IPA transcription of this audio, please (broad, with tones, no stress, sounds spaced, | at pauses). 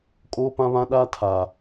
kʼ oː˦ p ã˦ β ã˦ ɗ aː˦ tʰ aː˨